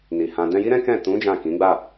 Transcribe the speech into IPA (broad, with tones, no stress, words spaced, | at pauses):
ni˨hã˧ dɛ̃˧ji˦ɾɛ̃˦ kɛ̃˦˨ tũ˨˦ d͡ʒã˦˨kĩ˨˦ ɡ͡ba˦˨